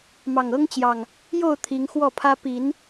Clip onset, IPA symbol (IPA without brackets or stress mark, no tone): m